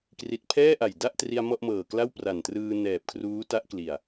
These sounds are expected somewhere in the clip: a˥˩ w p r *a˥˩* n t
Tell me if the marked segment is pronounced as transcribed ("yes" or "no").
no